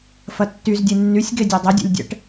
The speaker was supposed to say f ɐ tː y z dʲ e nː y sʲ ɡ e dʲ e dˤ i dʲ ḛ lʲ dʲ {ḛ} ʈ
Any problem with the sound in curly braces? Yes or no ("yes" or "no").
yes